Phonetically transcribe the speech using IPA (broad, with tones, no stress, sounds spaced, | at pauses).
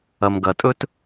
ɐ˨ m ɡ ɐ˨ tʼ ɵ˦ t